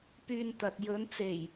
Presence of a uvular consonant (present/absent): absent